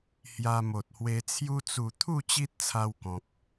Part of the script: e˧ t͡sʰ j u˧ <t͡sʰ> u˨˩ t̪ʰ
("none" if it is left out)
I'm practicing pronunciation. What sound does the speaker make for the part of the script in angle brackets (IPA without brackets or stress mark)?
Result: t͡s